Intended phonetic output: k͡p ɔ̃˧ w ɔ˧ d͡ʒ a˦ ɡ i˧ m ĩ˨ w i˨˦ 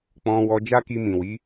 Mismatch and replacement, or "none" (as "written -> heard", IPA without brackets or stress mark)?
ɡ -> k